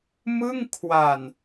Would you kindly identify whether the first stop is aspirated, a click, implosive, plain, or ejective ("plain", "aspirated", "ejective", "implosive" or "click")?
aspirated